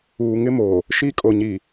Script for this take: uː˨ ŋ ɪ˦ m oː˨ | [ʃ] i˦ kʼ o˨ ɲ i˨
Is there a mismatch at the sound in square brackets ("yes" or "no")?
no